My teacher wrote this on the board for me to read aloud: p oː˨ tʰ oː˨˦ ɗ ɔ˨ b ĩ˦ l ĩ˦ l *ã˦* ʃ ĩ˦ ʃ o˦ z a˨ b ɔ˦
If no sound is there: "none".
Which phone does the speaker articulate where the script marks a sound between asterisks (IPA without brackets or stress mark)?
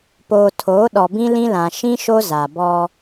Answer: ã˨